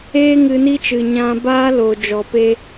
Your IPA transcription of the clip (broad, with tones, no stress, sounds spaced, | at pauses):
eː˦ ŋ ɨ˧ n i˦ t͡ʃ ɨ˨ ɲ ã˧ b aː˦ l o˨ d͡ʒ ɔ˨ p e˧